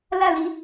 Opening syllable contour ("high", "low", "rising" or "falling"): falling